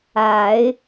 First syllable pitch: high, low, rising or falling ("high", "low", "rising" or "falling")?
low